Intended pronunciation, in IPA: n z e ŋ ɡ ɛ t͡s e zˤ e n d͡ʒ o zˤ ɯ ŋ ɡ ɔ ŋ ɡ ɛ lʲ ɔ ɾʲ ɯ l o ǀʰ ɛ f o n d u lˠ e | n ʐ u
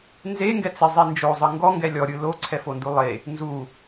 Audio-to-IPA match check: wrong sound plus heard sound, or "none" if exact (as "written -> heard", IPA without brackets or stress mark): ʐ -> z